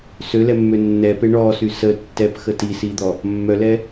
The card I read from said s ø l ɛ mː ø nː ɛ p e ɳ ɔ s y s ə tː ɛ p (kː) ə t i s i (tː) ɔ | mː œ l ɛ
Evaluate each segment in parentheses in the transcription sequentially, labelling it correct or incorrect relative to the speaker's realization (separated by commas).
incorrect, incorrect